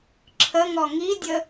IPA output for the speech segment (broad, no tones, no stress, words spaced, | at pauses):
ǁʰəŋɔ ŋidʲə